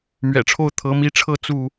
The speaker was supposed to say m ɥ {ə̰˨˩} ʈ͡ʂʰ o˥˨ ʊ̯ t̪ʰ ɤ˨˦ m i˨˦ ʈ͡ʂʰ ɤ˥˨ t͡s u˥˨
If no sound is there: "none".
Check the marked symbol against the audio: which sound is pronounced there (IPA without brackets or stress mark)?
ɛ̰˨˩